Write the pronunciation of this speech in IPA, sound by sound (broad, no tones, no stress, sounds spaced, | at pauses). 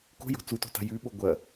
k o̤ j o̤ t͡s u t o̤ t a̤ j ʉ ɓ o ɡʷ ɐ